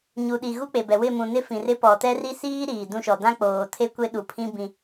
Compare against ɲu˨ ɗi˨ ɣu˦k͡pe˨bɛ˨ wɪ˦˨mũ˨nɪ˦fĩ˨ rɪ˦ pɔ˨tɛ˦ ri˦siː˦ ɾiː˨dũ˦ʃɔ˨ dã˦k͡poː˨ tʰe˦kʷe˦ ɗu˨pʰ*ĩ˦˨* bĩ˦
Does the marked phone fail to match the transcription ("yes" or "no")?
yes